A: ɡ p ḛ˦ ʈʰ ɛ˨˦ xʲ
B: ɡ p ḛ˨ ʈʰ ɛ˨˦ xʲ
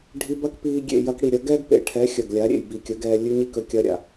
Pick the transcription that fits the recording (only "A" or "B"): B